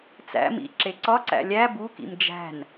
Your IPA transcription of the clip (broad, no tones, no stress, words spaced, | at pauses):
t͡sæ̰ mḭǁeǀɒǀæ̰ lʲæ bukḭm d͡ʒæ̤n